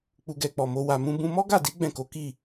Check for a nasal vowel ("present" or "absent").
present